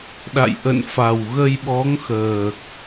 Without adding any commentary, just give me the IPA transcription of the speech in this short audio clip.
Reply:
ɗa̰˧˨j ʔə̰˧˨n fa˨˩wɣə˧jɓɔ˨˦ŋxəː˨˩k̚

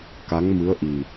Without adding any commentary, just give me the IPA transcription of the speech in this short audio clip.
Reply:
ka˧˥ŋmɨ˧˥ə̯ ʔi˨˩

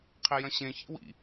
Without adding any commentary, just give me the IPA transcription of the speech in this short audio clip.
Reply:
qʰejɐ̃ɕẽ çḭwḭ

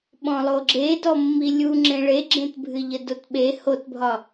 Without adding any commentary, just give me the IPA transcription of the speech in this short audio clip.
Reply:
ɓɔ̃lˠoɡ͡ǁedɔ mːilʲu ŋ͡ǁẽɭeɡ͡ǁẽtbʱɨ ʎədotɓe hotbʱɒ

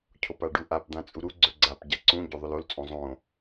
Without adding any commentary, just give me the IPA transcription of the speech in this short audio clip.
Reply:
cʰopaɖuʔap d̪ãt͡sʼuɾu ɡ͡ǀɵɡ͡ǀap ɟaǀũ ɟoðˤɵlol t͡sʼõzˤõ

